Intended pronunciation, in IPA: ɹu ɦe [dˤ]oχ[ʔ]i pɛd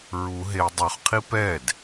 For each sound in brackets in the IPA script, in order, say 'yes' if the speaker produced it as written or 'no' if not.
yes, no

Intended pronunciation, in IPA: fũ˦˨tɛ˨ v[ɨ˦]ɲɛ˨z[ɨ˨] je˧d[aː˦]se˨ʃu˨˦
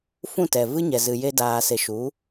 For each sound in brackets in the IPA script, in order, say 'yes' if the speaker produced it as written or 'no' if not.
yes, yes, no

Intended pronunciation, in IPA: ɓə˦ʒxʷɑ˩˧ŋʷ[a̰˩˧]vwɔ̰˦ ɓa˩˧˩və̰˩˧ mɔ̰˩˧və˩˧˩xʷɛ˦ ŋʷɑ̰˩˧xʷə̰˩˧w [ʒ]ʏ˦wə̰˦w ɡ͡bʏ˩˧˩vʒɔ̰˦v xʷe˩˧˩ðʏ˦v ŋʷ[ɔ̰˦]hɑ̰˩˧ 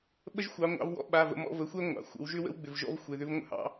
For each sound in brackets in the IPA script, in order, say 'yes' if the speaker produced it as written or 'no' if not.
no, yes, no

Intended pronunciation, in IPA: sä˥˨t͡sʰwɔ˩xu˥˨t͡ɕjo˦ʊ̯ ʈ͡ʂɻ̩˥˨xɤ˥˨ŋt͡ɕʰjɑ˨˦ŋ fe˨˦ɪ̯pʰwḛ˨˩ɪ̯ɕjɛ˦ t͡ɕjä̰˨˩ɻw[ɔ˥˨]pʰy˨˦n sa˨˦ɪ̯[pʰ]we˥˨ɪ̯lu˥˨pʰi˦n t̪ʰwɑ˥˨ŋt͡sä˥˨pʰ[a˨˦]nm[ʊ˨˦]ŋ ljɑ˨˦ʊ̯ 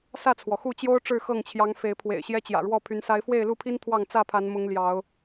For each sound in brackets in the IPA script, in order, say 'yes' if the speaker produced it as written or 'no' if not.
yes, no, yes, yes

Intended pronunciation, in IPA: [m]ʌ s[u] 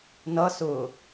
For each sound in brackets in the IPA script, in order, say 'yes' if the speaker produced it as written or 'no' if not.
no, no

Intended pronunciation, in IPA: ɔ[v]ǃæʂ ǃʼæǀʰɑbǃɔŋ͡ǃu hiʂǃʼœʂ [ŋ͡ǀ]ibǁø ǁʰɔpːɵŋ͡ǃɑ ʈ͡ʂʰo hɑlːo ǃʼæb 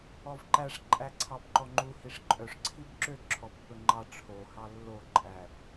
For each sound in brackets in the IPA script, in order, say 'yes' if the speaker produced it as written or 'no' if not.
yes, no

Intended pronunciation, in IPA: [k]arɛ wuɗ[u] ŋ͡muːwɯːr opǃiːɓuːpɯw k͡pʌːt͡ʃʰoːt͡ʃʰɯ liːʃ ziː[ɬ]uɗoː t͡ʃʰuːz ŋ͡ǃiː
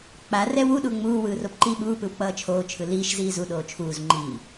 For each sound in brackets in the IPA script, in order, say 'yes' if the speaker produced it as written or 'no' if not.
no, yes, no

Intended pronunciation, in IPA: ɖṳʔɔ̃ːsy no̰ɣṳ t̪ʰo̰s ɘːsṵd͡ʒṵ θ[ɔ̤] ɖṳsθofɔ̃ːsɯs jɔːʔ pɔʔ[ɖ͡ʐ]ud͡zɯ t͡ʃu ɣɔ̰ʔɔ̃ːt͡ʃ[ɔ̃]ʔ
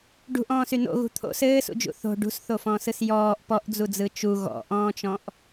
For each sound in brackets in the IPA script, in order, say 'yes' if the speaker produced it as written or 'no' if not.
no, no, yes

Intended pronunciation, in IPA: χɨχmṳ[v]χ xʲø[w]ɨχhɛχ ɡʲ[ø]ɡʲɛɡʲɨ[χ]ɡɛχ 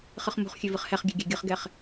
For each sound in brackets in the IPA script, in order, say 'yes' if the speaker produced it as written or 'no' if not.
no, no, yes, yes

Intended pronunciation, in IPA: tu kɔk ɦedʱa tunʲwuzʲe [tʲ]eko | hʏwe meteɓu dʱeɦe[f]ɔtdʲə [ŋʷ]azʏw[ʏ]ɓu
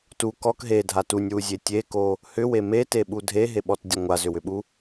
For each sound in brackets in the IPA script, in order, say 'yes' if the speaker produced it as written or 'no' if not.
yes, no, yes, yes

